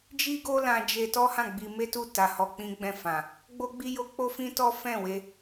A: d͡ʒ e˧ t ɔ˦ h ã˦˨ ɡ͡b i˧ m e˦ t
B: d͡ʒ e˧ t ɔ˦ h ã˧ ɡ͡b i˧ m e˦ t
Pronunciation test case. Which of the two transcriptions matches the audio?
A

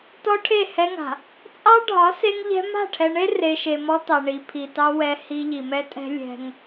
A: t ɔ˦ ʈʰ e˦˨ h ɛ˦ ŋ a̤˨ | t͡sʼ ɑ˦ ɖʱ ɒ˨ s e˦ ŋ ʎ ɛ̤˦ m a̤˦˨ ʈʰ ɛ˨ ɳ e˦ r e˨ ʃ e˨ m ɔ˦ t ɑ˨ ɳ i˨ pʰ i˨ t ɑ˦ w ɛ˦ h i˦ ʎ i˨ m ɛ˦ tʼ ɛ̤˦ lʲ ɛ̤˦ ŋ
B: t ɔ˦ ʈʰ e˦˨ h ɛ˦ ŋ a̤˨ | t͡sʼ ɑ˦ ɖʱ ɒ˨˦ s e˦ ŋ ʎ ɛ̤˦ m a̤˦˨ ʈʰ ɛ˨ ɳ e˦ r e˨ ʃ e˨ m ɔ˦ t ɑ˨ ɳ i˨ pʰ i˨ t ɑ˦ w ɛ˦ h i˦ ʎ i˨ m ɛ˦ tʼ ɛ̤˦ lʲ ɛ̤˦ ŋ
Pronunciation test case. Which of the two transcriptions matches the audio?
B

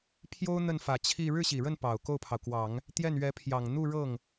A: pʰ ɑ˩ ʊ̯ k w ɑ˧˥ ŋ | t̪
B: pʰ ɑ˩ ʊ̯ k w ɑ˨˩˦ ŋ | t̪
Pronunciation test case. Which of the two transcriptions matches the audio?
B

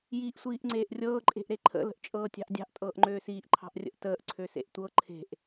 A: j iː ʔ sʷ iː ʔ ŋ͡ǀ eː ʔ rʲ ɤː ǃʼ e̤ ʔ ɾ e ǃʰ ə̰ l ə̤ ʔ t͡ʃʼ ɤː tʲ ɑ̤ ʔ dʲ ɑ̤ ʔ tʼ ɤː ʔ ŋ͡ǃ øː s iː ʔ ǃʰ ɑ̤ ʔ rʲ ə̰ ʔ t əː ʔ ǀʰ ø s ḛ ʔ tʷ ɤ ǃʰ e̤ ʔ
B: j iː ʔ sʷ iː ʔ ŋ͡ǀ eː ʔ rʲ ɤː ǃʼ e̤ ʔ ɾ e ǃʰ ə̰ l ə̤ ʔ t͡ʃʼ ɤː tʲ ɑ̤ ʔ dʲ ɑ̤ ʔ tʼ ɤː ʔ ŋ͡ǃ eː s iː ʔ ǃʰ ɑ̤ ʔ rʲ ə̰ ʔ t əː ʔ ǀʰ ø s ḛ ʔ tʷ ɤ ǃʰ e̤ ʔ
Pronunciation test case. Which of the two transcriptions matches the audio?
A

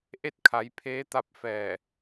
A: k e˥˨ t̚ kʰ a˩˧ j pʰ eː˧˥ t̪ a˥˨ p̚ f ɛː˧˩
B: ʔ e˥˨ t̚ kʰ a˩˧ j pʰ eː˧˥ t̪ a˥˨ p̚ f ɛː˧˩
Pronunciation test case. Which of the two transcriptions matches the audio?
B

